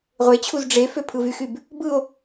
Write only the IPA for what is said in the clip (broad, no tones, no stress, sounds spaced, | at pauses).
ʁʷ e t͡ɕʰ u z ɖ͡ʐ e f ø pʰ ɯ v y x y b | b ɯ o̯